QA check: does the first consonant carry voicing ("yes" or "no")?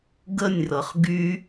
yes